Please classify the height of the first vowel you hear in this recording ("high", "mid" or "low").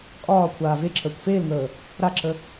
low